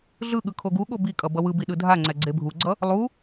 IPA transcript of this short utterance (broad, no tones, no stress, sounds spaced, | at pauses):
ɮ ɯ ɠ ɯ kʰ o ɡ u ɠ o b i kʼ ʌ b ʌ w ɯ b i ɗ ɯ dʱ a ŋ͡ǀ ɛ ɡ͡ǀ e bʱ u ɡ͡ǀ ʌ | lˠ u